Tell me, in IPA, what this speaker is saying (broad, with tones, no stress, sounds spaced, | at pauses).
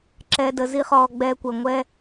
ǁ ɛ˧ d ə˨ z i˦ χ ɔː˧ ɡ͡b ɛː˧ kʷ ə˨ ŋʷ ɛ˧